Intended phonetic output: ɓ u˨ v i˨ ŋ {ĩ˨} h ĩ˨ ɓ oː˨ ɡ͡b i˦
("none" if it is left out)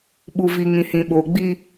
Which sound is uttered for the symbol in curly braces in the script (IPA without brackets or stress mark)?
ĩ˨